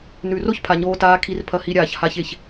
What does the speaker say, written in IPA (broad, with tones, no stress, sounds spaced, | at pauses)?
n ʉ˩ r o˥ ç pʰ a˩ ɲ oː˧ t aː˧ kʰ i˧ r pʰ ɐ˧ h i˧ ɾʲ aː˩ ç h a˧ ç e˩ ç